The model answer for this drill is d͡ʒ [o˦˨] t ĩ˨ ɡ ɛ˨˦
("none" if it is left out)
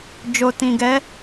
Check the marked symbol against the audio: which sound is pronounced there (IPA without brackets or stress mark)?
o˨